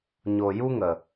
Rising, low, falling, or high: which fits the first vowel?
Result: low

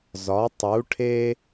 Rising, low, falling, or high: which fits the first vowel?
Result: rising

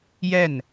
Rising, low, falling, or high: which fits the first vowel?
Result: falling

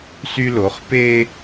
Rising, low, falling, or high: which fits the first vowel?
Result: high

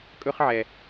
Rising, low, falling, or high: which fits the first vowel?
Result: high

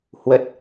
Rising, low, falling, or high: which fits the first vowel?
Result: low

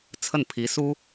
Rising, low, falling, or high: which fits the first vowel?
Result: falling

